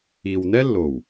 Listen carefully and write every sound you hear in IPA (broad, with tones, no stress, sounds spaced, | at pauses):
i˨ w n ɛ˦ lː o˨ w